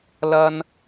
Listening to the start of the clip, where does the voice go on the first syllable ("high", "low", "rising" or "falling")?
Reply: high